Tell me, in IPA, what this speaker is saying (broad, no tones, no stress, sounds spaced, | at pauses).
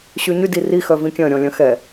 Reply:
ɕ y ɲ y d i r i x œ v ĩ kʲ œ̃ ɾʲ ɔ̃ lʲ œ̃ x ɛ